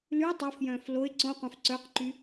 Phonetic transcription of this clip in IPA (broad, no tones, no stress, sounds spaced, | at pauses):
l ʉ tˤ œ f j œ̃ː f l o ɪ̯ ǀ õ qʷ œ̃ f ǀ œ q ǃ y